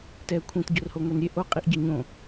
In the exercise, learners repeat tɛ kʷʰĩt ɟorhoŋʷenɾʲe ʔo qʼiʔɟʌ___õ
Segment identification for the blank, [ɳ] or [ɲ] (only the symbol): ɲ